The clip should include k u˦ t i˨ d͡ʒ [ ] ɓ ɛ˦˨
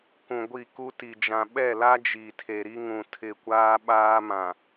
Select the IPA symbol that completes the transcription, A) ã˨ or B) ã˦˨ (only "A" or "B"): A